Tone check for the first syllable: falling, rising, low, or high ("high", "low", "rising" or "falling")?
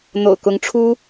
low